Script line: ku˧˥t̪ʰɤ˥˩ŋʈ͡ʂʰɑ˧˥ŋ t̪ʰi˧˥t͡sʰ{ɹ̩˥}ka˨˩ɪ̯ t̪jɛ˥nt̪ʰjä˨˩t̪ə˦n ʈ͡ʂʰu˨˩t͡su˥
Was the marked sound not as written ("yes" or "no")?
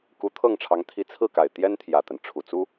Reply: yes